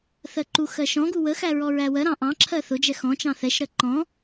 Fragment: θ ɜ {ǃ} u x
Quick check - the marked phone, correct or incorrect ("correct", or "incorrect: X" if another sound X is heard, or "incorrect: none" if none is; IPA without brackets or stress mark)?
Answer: correct